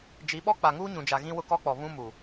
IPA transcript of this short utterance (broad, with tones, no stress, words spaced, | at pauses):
d͡ʒi˨˦ɓɔ˦ k͡pa˨ŋuː˦ɲũ˨d͡ʒa˨ ɣĩ˦wʊ˦kɔ˦k͡pɔ˨ βũ˦mu˨